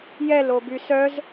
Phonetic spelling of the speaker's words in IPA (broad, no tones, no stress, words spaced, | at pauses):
jɛloby sœz